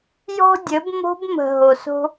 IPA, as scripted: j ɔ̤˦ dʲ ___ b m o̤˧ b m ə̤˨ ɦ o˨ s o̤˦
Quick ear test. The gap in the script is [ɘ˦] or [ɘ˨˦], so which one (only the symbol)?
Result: ɘ˨˦